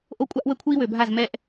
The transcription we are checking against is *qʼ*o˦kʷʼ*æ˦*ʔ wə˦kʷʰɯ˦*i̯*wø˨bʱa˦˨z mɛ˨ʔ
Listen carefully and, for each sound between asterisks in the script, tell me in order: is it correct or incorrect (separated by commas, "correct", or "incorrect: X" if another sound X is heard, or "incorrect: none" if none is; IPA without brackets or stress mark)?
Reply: incorrect: ʔ, incorrect: a˦, correct